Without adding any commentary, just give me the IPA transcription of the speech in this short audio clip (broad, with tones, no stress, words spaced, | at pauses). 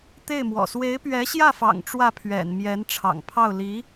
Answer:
t̪e˥˩ɪ̯mwɔ̰˨˩ swe˧˥ɪ̯pɥɛ˧˥ɕjä˥˩fɑ̰˨˩ŋ ʈ͡ʂwä˥˩pʰɥɛ̰˨˩n mjɛ˧˥n ʈ͡ʂʰɑ̰˨˩ŋpʰɑ˥˩ʊ̯ li˧˥